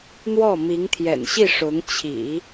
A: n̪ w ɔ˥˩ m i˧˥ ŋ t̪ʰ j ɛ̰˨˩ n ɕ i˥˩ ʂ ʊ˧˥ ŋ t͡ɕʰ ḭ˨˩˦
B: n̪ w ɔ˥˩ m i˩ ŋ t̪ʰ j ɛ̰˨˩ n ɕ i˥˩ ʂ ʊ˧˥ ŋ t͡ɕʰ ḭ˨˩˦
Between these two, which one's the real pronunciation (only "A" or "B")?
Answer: A